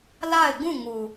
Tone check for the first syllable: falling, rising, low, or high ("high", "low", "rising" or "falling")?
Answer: falling